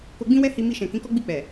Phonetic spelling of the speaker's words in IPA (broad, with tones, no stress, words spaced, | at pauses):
ko˧ɡ͡bĩ˦wɛ˦hi˧ mi˧ʃɛ̃˨ kĩ˨˦kɔ˦ɡ͡bi˦˨k͡pɛ˨